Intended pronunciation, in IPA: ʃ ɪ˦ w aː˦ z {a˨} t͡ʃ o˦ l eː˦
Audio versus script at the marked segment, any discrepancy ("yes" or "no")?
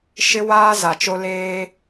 no